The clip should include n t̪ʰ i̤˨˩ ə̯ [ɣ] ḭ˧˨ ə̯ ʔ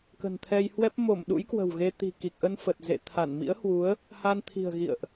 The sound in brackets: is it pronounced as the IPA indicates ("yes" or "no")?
yes